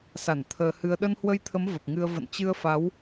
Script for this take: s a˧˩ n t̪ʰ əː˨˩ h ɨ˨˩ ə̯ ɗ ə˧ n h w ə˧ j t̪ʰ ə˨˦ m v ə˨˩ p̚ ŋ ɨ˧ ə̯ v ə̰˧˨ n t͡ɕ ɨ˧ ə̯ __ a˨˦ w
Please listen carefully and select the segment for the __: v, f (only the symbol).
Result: f